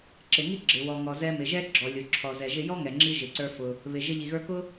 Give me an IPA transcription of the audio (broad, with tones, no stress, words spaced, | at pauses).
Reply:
ǁɪ˩ŋi˥ ɡ͡ǁɪ˩ wɔ˩ŋɔ˩ zɛ˧mɪ˩ʒɛ˥ ɡ͡ǁɔ˩lʲʊ˩ ǁʰɔ˩ zɛ˩ʒɪ˧ jɔ˥ŋɛ˩ŋ͡ǁi˧ ʒɪ˩ǀə˞˧fʊ˩ | βɪ˩ ʒɪ˧ ʎi˩ɣə˞˧kʊ˥